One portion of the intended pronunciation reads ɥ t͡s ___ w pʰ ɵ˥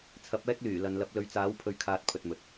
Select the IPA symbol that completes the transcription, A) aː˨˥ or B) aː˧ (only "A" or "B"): A